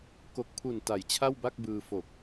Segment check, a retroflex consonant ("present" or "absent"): absent